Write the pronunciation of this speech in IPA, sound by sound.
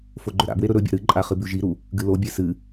f o ɡ͡ǃ ɵ ɾ a̰ b w e ɾ ɵ ɾ ɵ bʲ a̰ ɾ ɨ ǃʼ a χ ɨ b ʉ ʒ i ɾ u | ɡ ɨ l o bʲ e s ɨ

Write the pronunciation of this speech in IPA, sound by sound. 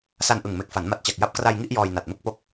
s a˧ n ʔ ɯ˨˩ ŋ m e˨˩ k̚ f a˩˦ n m a˨˩ t̚ t͡ɕ a˨˩ k̚ j a˦˥ p̚ k r a˧ j ŋ i˥˩ ʔ j ɔː˧ j n a˨˩ t̚ m ɯ˥˩ k̚ p o˦˥ k̚

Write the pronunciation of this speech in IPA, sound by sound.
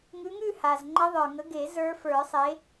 ŋ ʉ˨˦ ŋ ʉ˥˨ h a˩ z ŋ͡ǃ ə˦˥ ðˤ ə˞˩ ŋ ə˨˦ ɡ e˨˩˦ z ə˞˦˥ f ə˞˨˩˦ sˤ e˨˦

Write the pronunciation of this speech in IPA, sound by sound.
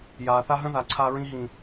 j aː˨ θ a˦ ɦ ə̃˦ ð a˨ ǀʰ a˦ ɹ ĩ˦ ɦ ĩ˨

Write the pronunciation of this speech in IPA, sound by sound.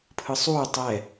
pʰ ɯ sˤ uː tˤ ɛ

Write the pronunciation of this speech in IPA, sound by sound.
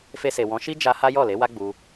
f e˧ s e˨ w ɔ̃˨˦ ʃ i˦ d͡ʒ a˧ h a˦ j ɔ˦˨ l e˨˦ w a˦ ɡ͡b u˧

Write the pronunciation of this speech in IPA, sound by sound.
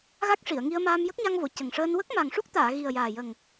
ɣ a˦˥ k̚ ʂ i˨˩˨ ə̯ ŋ i˧ ə̯ m aː˧ m j ə˦˥ k̚ ɲ a˧ ŋ v o˨˩˨ c ə˨˩ ŋ ʂ əː˧ n w ə˦˥ k̚ m a˨˩ ŋ ʂ u˦˥ k̚ t̪ aː˨˩˨ ɣ i˨˩ ə̯ j aː˨˩ j ə˨˩ ŋ

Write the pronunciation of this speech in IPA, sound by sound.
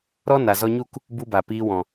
ɾ ɔ˦ n a˨ z ɔ˧ ɲ u˦˨ k | b u˦ b a˨ p iː˧ w ɔ̃˨

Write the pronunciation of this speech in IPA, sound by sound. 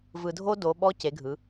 v ɯ˩ dʱ o˧ d o˩˧ ɓ ɔ˧˥ c e˩˧ ɡʱ ɯ˩˧

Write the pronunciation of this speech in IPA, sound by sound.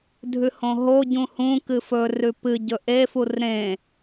dʱ ʉ h õ ɦ o ɟ ũ h ũ k ɨ f ɵ r ʉ p ɨ ɟ ɵ ʔ e f u r ɾ ẽ

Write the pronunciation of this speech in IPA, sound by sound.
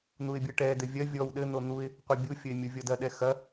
n̪ u ɪ̯ bʲ ɘ ʈ ɛ d ɘ vʲ ɐ vʲ ɔ w ɗ ɘ n̪ o n̪ u ɪ̯ | qʷ ɛ bʲ u fʲ ə ɪ̯ mʲ u vʲ ɔ d ɐ ɗ ɛ x ɐ

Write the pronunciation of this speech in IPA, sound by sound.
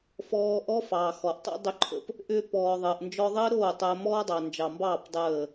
f ɔː˧ ʔ ɔ˦ f ɑː˨ x ɔ˨ ʔ tˤ o̰˦ dˤ ʏ˧ ǃʰ ə̰˧ p | ʔ ʏː˧ p ɔː˨ ðˤ əː˨ ʔ n d͡ʒ ɔ˧ ðˤ əː˦ ɾ oː˦˨ tˤ əː˧ m ɔː˦ dˤ ɑ˨ n d͡ʒ ɑ˨ m b ɑː˦˨ p dˤ əː˦˨

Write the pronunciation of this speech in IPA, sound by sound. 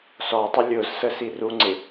s ɔ tˤ ɪ lʲ ʊ z s ə s i r u ŋ͡ǀ ɪ

